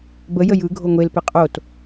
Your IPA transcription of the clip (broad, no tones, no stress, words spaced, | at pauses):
bə jəjɯ ɡʱoŋʷel pɪqʼot